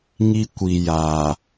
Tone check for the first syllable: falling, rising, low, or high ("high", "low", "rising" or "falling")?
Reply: high